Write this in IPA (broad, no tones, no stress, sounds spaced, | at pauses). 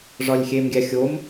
ʐ ɒ lʲ xʲ e m ɡʲ æ xʲ o m